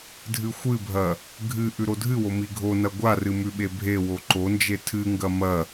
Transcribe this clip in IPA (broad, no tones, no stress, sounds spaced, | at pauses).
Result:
dʱ ɨ xʷ ɨ bʱ ɐ | ɡʱ ɨ ʔ ʉ ɾ o dʱ ɨ w o m i ɡʱ o n ɐ ɡʷ a r ɨ m ʉ ɓ e bʱ e w o ǃ o n d͡ʒ e tʰ ɨ ŋ ɡ ɐ m ɐ